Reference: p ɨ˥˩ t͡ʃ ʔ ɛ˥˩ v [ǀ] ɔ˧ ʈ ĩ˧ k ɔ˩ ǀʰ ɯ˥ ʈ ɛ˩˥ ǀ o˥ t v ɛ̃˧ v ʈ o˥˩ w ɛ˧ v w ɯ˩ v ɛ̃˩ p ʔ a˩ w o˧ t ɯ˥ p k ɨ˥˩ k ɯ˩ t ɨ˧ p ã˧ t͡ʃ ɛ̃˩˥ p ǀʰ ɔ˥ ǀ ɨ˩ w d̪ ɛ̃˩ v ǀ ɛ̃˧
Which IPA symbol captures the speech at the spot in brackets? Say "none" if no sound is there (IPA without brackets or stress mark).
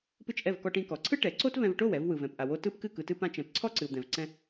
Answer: k